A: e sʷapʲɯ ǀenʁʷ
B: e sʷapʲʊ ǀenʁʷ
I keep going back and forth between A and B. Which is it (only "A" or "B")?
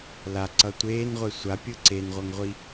A